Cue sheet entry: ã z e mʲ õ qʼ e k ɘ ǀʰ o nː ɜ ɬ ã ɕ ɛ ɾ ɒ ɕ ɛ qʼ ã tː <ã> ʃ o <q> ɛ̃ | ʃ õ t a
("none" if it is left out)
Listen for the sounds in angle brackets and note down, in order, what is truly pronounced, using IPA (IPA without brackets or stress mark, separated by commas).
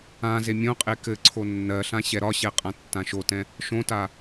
ã, t